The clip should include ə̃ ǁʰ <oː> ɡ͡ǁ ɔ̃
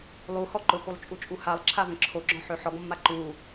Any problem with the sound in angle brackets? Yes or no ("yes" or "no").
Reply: yes